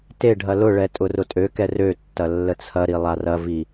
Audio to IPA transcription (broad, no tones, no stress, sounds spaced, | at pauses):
t e ɖʱ ɐ l ʊ ɭ ɛ tʼ ʊ r ʊ tʼ ø k ɛ r ø tː ɐ lː ə t͡sʰ ɐ ɾ i lˠ a r ɐ v i